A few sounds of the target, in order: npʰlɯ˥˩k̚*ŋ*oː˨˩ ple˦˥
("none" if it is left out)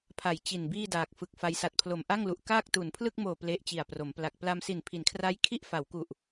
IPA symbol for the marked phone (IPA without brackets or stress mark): m